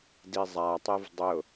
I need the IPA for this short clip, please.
d i zˤ a tˤ e v dˤ ʊ

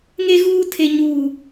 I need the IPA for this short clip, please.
ŋ e˦ ɣ uː˦ tʰ e˦ ɲ uː˦

